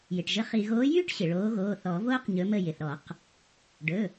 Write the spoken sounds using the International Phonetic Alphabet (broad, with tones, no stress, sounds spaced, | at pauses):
j ɪ˩ ʈ ʒ ə˨˦ χ i˩ ɣ oː˨˦ j yː˥ ʈ ɕ ɪ˩ ɭ oː˨˦ ɣ oː˩˧˩ θ ɔ˨˩˦ v oː˥ q ɲ ɵ˨˦ m ə˦˨ j ɪ˩ θ ɾ ɔ˨˩˦ q | ɖ ɵ˩˧˩